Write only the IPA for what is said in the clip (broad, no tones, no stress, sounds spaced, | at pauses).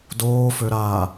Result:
d oː f ø ɾ a